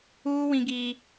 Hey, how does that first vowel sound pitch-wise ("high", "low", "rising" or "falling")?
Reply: high